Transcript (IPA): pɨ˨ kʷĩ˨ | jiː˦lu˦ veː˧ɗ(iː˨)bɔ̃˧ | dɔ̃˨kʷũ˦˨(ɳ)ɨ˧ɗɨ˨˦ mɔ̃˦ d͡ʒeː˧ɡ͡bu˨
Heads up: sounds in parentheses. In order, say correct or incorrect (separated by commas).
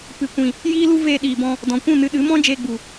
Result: correct, incorrect